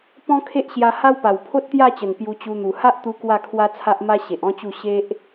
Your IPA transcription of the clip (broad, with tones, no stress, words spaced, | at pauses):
pɔ̃˦kʰe˦ʔɕja˧ ha˦wpa˨˩w pʰo˦t̚t̪ja˥˧t͡ɕə˨˩n pju˧t͡ɕu˧n̪u˨˩ ha˦ʔt̪u˧ kwa˥˧kʰwa˦t͡sʰa˦ʔ ma˦ɕe˨ʔɔ̃˦t͡ɕu˥˧ ɕe˦ʔ